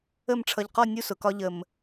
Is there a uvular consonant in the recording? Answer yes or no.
yes